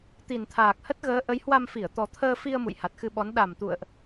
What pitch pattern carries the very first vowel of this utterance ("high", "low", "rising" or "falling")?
low